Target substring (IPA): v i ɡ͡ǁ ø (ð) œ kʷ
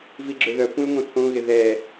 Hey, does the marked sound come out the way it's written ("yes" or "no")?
yes